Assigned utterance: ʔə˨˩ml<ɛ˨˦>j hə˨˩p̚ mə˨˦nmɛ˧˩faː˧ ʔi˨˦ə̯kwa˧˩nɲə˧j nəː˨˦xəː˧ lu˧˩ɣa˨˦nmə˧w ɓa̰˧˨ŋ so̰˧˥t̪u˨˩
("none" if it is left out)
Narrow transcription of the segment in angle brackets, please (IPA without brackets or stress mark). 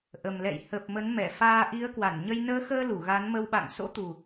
ɛ̰˧˨